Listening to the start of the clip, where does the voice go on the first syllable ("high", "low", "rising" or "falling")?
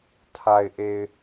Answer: low